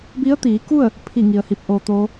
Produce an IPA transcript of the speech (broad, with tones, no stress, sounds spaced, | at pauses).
b i˧˥ ə̯ t̪ iː˩˧ k u˥˨ ə̯ | pʰ i˥˨ ŋ i˩ ə̯ h i˧ p̚ ʔ oː˧ t̪ oː˧˥